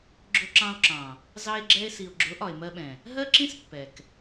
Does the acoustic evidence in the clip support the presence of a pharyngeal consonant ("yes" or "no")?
no